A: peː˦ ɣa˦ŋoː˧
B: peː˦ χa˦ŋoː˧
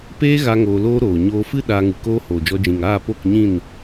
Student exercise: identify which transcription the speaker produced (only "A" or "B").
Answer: A